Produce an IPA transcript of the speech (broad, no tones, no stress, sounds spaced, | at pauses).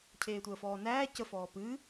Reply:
cʰ eː tʷ əː f ɔː n æː c ə f ɔː p ɨː